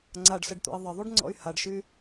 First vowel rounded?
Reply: no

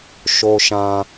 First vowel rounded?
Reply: yes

